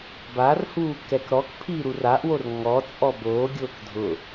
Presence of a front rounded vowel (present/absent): absent